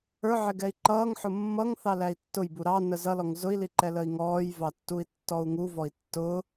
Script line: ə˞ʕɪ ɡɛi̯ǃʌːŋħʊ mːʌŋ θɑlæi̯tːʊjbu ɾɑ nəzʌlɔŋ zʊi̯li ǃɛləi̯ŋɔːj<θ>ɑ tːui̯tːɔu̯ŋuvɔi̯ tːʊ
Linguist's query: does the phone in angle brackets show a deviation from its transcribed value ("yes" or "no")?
yes